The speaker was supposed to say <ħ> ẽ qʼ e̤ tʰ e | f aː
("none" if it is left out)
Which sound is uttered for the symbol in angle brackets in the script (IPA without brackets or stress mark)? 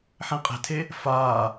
ħ